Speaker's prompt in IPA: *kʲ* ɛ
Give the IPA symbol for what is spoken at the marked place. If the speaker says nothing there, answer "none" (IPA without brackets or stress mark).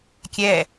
kʲ